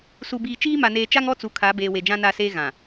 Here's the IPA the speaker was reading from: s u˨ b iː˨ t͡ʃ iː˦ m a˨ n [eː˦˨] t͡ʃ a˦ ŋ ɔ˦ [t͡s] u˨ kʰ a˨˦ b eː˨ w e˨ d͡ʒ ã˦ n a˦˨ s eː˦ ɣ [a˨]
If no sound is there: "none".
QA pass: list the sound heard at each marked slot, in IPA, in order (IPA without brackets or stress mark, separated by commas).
eː˨, t͡s, ã˨